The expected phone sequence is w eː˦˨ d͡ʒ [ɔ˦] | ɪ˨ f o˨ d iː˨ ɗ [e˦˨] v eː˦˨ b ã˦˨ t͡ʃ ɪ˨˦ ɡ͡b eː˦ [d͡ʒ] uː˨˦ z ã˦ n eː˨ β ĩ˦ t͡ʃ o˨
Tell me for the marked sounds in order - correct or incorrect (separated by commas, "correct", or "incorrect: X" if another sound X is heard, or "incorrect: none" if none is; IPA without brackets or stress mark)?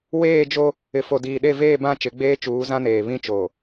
incorrect: o˦, correct, incorrect: t͡ʃ